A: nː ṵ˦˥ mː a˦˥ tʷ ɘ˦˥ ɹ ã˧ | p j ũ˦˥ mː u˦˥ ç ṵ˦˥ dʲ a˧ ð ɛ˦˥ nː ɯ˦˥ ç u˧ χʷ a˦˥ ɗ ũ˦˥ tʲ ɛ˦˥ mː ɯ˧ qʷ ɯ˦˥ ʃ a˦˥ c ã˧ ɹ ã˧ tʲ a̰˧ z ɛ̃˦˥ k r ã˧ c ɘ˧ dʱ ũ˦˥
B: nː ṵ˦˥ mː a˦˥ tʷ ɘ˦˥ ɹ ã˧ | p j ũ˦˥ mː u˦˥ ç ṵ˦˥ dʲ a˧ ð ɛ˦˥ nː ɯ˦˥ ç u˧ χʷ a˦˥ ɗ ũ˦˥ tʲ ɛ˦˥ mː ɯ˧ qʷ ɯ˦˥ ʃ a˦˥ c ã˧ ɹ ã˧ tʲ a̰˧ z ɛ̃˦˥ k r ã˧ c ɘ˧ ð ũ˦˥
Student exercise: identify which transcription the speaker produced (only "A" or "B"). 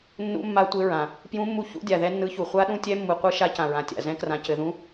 B